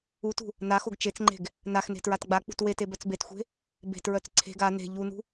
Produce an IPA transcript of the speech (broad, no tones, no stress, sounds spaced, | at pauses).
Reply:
u t ṳ | n a x o ɡ t͡ʃ e t͡s ŋ͡ǃ e̤ ɡ | n a x n e̤ t ɹ a t ɡ͡b a k͡p ṳ t w e t e b œ t͡s b e t xʷ e̤ | b e̤ t ɹ œ t͡s ǀʰ e̤ ɡ a n e̤ ʎ u n ṳ